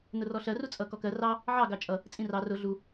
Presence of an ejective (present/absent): present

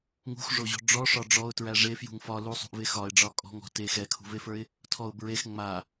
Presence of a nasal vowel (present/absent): absent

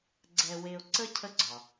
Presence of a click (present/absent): present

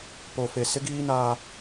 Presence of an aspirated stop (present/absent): absent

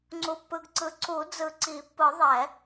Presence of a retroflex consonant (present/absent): absent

